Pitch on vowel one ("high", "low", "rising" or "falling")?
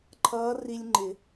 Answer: rising